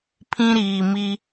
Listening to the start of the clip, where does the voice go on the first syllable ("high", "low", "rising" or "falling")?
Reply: high